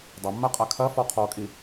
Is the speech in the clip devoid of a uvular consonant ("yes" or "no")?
no